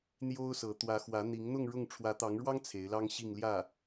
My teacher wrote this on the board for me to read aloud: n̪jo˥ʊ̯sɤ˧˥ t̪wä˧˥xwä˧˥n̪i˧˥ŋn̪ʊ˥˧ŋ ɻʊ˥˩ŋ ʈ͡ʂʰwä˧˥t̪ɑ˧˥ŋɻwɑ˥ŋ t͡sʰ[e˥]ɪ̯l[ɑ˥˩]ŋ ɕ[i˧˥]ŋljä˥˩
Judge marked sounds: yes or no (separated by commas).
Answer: no, no, no